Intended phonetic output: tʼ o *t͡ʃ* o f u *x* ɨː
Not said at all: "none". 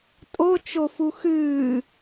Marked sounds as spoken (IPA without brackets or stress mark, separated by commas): t͡ʃ, x